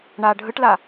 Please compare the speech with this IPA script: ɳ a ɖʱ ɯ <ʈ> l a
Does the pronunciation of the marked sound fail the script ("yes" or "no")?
no